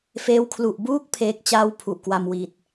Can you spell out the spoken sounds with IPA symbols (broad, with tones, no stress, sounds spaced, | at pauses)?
f eː˦˥ w kʰ l u˨˩ ʔ b uː˥˩ k̚ pʰ eː˦˥ k̚ t͡ɕ aː˥˩ w pʰ u˨˩ ʔ k w a˧ m w i˨˩ t̚